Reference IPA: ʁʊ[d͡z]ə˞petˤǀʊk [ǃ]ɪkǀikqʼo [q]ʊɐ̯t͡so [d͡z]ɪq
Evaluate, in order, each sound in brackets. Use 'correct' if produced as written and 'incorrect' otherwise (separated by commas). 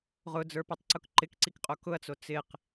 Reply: correct, correct, incorrect, incorrect